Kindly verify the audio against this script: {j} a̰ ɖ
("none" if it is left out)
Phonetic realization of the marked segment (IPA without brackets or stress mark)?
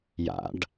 j